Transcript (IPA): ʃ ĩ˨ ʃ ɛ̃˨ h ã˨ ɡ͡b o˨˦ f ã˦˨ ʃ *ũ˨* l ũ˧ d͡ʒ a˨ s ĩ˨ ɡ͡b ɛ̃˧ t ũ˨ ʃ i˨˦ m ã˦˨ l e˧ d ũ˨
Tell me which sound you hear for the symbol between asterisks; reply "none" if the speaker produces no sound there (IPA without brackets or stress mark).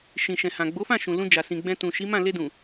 ũ˨